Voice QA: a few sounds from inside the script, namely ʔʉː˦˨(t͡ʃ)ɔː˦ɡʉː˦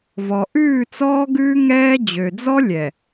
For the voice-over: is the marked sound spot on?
no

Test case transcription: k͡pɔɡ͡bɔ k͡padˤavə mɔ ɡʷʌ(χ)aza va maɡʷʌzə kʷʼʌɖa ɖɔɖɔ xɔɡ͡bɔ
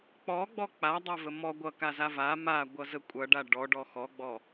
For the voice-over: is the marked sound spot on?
no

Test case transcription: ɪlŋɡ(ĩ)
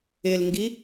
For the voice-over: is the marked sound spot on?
no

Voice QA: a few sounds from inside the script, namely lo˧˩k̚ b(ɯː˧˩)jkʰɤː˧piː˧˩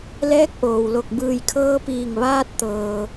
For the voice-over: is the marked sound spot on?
yes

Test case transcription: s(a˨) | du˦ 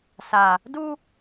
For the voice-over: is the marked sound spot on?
yes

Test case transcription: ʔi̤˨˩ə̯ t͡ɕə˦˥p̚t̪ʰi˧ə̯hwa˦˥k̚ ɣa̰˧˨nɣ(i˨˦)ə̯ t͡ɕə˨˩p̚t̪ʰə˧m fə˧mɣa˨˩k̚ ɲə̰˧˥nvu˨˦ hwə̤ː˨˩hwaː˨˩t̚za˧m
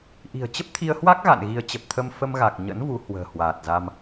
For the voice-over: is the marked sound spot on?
yes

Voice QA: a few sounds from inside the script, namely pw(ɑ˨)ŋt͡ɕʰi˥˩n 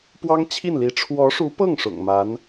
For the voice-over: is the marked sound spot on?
no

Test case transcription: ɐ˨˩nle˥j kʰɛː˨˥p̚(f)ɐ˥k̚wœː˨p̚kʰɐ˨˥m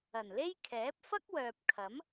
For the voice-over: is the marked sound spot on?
yes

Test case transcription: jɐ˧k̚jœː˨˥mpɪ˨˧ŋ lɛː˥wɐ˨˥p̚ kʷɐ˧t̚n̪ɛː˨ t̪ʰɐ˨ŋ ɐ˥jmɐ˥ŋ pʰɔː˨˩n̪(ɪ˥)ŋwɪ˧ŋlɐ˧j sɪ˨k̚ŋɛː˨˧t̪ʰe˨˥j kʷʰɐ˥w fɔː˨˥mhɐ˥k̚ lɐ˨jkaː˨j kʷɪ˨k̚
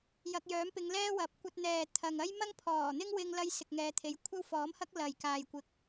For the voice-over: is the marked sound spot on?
yes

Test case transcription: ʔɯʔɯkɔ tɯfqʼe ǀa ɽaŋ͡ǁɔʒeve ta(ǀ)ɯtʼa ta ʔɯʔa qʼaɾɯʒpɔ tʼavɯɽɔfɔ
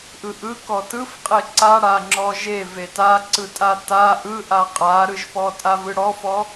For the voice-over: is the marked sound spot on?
yes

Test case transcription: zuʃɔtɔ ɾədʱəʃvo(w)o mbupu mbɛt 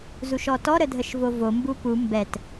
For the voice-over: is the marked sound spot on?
no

